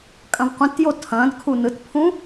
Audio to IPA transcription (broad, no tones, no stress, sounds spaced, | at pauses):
kʼ ɐ̃ v qʷ ɛ̃ t j o tʰ ɐ̃ː d kʰ u n ɯ t pʰ ũ